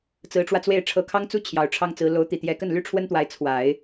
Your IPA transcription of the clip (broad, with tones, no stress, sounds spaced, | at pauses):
t͡s ɹ̩˧˥ ʈ͡ʂ w ä˧ t͡s w e˥˩ ɪ̯ ʈ͡ʂʰ ɤ˧˥ kʰ ɑ˥ ŋ t͡s u˥ t͡ɕʰ j ɑ˨˩ ʊ̯ ʈ͡ʂʰ ɑ˥ ŋ t͡s ɹ̩˧˥ l o˧˥ ʊ̯ t̪ i˨˩ t̪ j ɛ˧˥ k ə˥˩ n l y˥ ʈ͡ʂʰ w ə˥ n t̪ w a˧˥ ɪ̯ t͡sʰ w a˨˩˦ ɪ̯